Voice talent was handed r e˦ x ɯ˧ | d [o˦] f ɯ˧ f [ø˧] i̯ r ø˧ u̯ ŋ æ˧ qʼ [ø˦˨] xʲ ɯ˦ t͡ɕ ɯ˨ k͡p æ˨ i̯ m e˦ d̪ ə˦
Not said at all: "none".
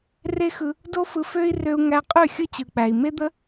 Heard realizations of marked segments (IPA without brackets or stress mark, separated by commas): o˦, ø˦, ø˦˨